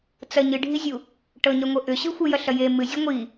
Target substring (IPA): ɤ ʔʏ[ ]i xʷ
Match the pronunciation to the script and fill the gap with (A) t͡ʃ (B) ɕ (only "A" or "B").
B